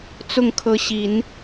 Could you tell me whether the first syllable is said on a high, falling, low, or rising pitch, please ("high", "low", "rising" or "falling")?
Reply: falling